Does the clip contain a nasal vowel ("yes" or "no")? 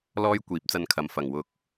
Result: no